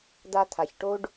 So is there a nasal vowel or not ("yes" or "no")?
no